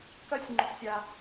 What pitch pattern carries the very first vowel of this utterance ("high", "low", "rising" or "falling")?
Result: high